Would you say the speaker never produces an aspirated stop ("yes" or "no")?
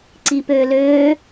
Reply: yes